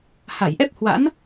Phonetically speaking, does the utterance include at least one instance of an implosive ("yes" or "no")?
no